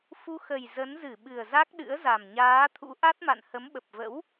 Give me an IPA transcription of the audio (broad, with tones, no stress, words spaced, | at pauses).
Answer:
fu˧xə˨˩j zə˨˦nzɨ˧˩ɓɨ˨˩ə̯ za˦˥k̚ɗɨ̰˧˥ə̯za˨˩m ɲaː˨˦t̪ʰṵ˧˥ ʔa˦˥t̚ma̰˧˨n hə˨˦mɓə˨˩p̚və̰˧˥w